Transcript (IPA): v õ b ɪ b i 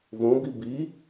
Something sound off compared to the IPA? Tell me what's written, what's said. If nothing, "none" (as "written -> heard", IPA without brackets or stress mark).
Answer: ɪ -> i